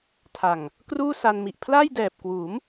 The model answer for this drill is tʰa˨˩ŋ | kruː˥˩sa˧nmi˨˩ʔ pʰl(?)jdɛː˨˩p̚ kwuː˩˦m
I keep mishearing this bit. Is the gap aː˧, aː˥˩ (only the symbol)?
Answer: aː˥˩